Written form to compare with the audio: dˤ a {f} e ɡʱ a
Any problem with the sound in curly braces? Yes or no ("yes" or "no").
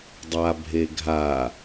yes